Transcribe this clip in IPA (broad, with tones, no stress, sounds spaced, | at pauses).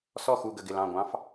s ɔ˥˨ x u˧˩ ɡ ə˧˩ ɡ ɪ˧˩ l ɑ̃˧˩ ɡʷ ɑ̃˧˥ f